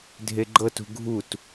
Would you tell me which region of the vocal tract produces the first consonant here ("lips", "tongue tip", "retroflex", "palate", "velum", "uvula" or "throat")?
tongue tip